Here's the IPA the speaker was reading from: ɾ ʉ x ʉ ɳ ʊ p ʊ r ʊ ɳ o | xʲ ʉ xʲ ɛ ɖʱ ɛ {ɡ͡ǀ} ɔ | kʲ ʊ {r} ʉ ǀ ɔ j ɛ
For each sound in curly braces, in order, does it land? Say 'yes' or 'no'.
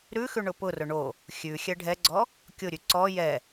yes, no

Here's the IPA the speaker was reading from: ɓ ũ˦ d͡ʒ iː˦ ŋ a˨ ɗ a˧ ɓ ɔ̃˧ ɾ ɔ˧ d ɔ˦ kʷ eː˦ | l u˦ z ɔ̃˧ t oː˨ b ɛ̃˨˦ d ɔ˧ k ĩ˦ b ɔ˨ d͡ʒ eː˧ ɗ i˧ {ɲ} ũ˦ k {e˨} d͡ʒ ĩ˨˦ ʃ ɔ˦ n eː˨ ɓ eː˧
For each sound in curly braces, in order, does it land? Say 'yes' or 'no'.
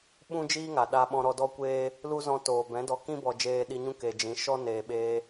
yes, yes

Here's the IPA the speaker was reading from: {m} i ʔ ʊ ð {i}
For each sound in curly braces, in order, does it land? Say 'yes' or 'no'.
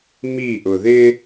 yes, no

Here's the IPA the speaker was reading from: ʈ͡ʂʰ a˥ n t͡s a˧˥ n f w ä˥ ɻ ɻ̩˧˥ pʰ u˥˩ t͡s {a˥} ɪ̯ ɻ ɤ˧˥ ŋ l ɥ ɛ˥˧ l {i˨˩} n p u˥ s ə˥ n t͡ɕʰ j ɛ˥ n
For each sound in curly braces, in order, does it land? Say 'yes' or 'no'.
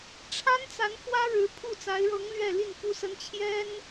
no, no

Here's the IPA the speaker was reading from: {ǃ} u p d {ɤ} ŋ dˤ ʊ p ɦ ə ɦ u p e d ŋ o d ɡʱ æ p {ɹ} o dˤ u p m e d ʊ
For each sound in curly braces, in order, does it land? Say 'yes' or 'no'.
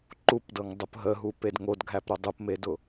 yes, yes, no

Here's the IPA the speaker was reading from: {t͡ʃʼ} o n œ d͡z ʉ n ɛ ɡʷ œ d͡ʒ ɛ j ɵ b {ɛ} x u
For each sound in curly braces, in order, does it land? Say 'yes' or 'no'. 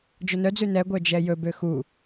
no, no

